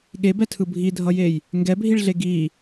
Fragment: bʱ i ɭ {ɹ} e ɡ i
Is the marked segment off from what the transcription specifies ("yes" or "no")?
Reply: yes